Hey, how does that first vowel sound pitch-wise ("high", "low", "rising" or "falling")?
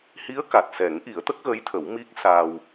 rising